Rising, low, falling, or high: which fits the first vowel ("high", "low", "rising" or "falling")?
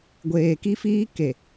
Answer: low